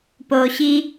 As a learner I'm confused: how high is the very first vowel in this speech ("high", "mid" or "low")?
mid